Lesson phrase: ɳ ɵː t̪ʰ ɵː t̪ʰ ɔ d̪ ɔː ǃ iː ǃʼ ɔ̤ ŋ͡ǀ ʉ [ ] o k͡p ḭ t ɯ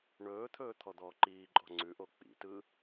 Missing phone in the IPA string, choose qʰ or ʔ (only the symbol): ʔ